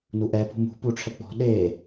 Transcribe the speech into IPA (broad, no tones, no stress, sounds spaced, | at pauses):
n u ʔ ɛ p ṳ m ṳ p u ʈ͡ʂʰ ɛ k͡p ɔ̤ ɗ e